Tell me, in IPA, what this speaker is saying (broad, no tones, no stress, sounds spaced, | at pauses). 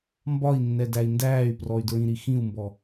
m b ɒ i̯ nː ɛ d æ i̯ n d æː y̯ p r ɔ y̯ d ɹ ĩ ɾ i x ĩ u̯ m b ɔ